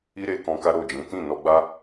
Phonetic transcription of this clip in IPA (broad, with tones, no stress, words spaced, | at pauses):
i˦ɾe˧kɔ̃˧ ka˦ɾo˦˨d͡ʒĩ˨˦ tĩ˦˨nɔ˧ ɡ͡ba˦